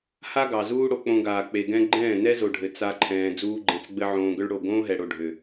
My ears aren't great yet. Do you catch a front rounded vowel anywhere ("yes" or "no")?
yes